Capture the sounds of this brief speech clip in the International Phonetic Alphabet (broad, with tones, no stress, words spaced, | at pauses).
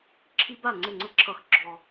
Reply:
ǁʰi˦ba˥˩ ŋ͡ǀɘ˥˩ŋ͡ǀɘ˦ǁʰʌ˨x ɡ͡ǁɔ˨